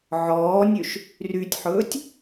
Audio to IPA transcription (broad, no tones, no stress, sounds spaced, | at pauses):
ʕ ɔː nʲ ø ʃ | r y tʲ ħ ɵː tʲ